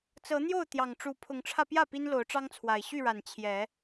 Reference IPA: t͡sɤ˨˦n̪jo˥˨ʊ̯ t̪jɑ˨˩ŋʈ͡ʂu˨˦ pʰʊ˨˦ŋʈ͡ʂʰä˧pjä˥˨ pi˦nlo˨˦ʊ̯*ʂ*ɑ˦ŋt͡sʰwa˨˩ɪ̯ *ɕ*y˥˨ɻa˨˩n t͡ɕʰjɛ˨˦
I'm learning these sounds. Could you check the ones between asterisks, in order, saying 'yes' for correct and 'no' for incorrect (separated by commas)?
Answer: no, yes